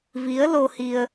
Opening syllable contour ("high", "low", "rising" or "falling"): rising